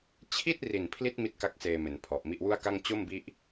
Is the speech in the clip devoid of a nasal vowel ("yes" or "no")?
yes